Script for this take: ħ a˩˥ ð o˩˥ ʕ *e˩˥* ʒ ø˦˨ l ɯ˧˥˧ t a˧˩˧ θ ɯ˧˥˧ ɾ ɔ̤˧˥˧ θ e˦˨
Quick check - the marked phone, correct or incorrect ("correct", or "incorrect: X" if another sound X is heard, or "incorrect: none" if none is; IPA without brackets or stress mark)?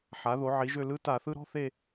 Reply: incorrect: i˩˥